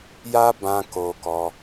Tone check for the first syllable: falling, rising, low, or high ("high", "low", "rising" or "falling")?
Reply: high